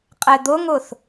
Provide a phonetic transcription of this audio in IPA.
qʼɛd̪ʊŋʊθ

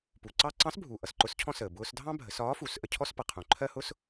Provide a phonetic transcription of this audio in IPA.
pu˩ ǀɑ˥ ǀɑ̃˧˥sbʱu˩ ʔʌ˩sǃʊ˧˥scʰɔ̃˥səː˩ bʊː˧sdʱɑ̃˥ bʱə˩˧sɒː˧˥fu˩˧s ʔə˧cʰɔ˥s pʌ˩qʰũ˩ǃʰɜ˥hʊ˥s

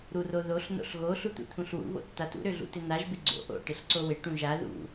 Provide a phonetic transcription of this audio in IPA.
ɾuroðoɬ no̰ɬɣo ɬut̪ṵt̪ʰũɬwṵ βo̰tːatṵ ɾøɮṵtɪnaʒ bɪɡ͡ǀo̰ ʔo̰ ʈɪɬǀowɪ ʈũʒa ðṵ

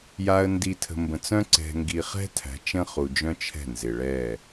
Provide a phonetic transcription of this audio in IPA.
ja˨ə̯ndi˨ tʰə̤˨mbə̃˨t͡sœ̃˦ ǀɛ̤˨ŋɡi˨χɛ̤˦ tʰæ̤˨˦t͡ʃə̃˦χu˨d͡ʒœ̃˦ t͡ʃʰɛ̤˦˨nzɪ˨ɭɛ˦˨

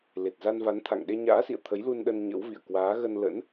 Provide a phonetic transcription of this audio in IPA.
le˨˩t̚za˧nva˨˦nt̪ʰa̰˧˨ŋ ɗe˧ɲa̰ː˧˥sḭ˧˨ə̯ t̪ʰə˨˦jlu˧nɗə˧n ɲə̰˧˥wvḭ˧˨ə̯ kwaː˨˦ɣə˧nlə̰˧˥n

